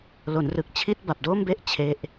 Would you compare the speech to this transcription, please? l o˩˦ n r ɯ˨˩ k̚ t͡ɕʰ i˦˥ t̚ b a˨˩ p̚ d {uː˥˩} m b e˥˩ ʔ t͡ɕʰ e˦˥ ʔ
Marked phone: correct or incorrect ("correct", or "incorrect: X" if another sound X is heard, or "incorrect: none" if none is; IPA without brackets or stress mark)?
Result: incorrect: oː˥˩